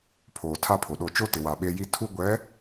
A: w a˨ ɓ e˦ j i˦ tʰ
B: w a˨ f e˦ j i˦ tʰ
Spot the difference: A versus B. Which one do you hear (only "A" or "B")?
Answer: A